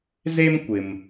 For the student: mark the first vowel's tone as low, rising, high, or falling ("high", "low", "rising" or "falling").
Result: high